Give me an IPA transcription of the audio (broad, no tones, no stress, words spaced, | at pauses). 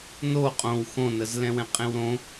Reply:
no qʼõw xõnəz lɛ̃wɛ̃qʼẽwɾõ